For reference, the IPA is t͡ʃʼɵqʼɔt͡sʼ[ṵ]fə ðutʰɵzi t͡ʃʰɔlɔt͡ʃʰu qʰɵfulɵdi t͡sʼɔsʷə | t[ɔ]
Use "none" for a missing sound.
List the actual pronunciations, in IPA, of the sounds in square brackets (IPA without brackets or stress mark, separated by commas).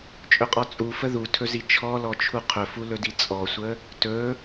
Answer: u, ɵ